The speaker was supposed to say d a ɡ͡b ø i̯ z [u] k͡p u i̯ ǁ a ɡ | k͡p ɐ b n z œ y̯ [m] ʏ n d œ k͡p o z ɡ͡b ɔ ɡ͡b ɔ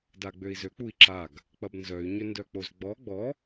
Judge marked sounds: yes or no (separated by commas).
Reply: no, no